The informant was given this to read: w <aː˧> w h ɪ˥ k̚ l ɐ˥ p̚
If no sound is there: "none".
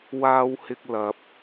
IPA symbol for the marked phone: aː˥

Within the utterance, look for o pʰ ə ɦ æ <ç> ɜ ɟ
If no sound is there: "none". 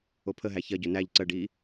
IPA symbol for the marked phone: ç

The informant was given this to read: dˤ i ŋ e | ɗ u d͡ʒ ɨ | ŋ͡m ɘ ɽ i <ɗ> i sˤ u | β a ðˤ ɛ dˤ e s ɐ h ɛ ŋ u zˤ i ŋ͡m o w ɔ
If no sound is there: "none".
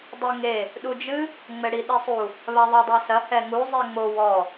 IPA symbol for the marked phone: ɗ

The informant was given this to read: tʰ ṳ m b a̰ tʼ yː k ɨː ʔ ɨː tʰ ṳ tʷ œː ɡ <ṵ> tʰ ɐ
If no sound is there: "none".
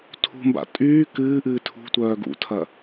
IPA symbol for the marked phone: ṵ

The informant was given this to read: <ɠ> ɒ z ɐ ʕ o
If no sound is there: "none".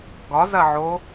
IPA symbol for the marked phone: ɡ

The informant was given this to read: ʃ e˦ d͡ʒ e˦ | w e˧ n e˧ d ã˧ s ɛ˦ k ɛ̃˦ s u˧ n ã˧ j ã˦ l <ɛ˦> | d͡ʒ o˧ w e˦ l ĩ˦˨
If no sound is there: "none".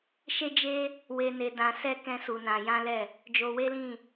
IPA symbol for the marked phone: ɛ˦˨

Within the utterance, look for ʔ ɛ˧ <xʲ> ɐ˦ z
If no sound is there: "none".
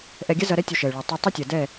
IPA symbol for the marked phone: ɡʲ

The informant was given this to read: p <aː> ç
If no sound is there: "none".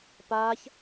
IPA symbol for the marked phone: aː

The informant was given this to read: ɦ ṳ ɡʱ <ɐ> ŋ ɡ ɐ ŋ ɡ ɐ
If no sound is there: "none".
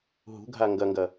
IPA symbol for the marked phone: a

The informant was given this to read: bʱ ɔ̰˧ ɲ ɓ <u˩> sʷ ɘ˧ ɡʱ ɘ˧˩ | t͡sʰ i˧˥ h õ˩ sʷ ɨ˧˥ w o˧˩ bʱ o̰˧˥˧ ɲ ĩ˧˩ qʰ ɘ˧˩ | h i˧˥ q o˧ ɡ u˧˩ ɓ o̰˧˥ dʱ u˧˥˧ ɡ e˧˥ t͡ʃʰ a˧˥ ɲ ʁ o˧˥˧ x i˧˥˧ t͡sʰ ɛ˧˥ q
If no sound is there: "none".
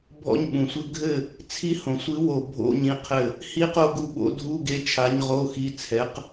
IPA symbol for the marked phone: ũ˩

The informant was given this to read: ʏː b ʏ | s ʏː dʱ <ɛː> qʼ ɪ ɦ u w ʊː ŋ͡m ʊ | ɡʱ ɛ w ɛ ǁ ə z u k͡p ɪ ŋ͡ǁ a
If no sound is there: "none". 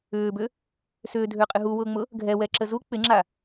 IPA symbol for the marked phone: ʏː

